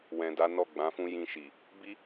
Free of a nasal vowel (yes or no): no